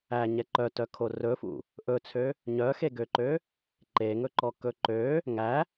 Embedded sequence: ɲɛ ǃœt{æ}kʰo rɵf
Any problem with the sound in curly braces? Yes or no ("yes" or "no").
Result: yes